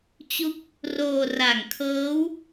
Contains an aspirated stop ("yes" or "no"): yes